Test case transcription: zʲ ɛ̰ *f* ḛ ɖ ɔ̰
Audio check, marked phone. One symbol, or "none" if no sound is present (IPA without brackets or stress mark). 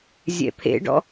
pʰ